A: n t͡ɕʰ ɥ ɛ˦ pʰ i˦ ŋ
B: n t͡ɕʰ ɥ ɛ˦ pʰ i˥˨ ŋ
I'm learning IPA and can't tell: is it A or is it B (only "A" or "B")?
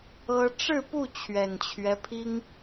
A